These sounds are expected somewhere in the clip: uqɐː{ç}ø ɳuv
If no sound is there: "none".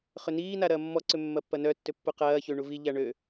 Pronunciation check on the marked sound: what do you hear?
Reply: ç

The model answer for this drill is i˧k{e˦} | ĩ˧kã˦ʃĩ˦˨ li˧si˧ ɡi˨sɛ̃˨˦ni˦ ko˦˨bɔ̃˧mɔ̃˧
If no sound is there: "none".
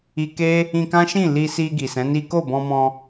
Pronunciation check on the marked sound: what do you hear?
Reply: e˦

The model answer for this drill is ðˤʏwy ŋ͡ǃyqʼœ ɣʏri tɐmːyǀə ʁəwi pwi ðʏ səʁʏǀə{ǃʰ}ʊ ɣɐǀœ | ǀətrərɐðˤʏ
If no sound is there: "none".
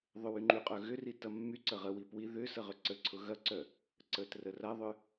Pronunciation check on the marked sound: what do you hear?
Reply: ǀʰ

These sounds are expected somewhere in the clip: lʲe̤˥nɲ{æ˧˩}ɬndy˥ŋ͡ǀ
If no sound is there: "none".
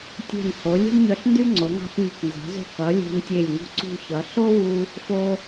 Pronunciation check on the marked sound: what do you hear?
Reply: œ˧˩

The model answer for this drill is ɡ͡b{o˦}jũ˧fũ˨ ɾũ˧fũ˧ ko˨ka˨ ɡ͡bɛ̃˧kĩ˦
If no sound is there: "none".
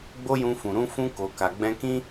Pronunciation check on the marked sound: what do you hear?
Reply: o˦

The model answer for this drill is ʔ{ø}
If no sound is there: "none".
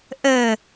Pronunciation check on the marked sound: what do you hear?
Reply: ə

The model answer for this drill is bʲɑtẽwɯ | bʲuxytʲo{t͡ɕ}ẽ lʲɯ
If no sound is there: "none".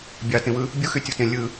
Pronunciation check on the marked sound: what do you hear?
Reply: t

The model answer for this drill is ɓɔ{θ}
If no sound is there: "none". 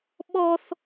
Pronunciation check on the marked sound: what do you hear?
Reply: θ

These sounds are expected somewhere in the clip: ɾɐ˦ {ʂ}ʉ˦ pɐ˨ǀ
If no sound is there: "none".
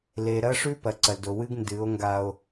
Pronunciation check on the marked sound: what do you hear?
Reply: ʂ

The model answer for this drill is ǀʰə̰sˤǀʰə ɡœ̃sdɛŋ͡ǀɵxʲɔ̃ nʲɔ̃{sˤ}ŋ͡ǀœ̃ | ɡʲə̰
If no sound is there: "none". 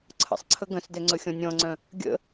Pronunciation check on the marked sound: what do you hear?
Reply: none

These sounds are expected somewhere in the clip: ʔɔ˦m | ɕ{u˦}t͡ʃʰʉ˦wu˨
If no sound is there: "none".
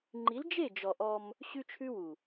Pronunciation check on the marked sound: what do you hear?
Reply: ʉ˦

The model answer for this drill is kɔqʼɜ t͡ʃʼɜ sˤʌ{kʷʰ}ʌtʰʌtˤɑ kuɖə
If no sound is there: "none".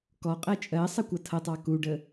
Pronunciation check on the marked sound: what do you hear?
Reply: kʷ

